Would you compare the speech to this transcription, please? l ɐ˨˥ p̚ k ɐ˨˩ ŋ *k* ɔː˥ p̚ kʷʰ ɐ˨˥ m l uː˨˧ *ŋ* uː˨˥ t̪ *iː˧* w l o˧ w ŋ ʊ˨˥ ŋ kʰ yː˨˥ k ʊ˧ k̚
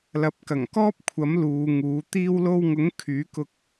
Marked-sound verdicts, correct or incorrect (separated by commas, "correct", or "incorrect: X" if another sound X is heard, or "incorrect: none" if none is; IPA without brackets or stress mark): correct, correct, correct